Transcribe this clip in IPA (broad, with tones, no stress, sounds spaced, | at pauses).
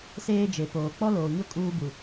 s eː˦ d͡ʒ e˨ p oː˨ k͡p ɔ˦ l oː˨ ɲ ʊ˦ kʼ uː˦ b u˨